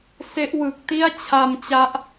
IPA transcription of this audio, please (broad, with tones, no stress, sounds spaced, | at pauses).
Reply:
s e˦˥ ʔ w ɯ˨˩ k̚ t i˥˩ a̯ t͡ɕʰ a˧ m t͡ɕ a˦˥ ʔ